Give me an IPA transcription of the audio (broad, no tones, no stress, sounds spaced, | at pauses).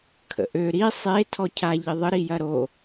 kʰ ə̰ ʔ ø ɾ i sˤ e tʰ ɔ cʰ a ʎ ɪ ðˤ ə ɾ i j ɐ ɾ o